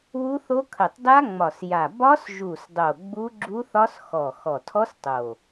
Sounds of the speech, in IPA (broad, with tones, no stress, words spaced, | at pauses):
wu˦˥θo˦˥ kʰə˨˩tˤda˦˥ŋ͡mɒ˨˩sja˨˩ bɒ˦˥sʒu˨˩sdˤo˨˩ ɡ͡bu˦˥ɡ͡ǁu˦˥θɒ˦˥s xɔ˨˩ xɔ˨˩tʰɔ˦˥s tˤo˨˩